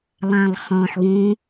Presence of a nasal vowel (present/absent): present